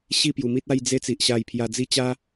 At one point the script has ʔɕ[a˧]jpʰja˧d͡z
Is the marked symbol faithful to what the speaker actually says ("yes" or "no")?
yes